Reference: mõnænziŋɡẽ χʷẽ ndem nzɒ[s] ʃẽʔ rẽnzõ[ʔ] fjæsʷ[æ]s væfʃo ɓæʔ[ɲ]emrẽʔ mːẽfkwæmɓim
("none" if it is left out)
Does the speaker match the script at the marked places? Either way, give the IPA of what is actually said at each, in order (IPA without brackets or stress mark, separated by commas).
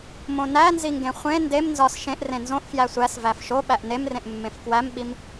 s, ʔ, æ, n